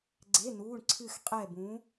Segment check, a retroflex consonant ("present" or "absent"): present